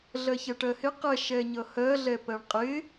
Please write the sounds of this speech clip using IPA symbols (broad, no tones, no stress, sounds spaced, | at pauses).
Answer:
ɮ ɜ ç ɛ ʈ ɜ h ɪ q ɛ ʃ ɛ ɲ ʌ h ɜ ɮ ɛ p ɜ ɳ qʼ ɪ